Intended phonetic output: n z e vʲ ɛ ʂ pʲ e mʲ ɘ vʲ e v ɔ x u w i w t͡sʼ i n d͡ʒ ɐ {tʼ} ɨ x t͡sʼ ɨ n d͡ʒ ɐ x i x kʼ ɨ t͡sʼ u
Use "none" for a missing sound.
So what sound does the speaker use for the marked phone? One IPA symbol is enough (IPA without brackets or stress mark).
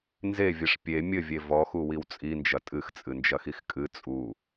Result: tʼ